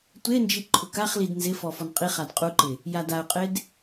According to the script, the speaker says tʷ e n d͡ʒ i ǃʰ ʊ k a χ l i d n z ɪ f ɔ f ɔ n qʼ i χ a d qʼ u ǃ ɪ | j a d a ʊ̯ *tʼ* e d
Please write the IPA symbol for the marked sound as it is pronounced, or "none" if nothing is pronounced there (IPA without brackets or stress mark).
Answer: qʼ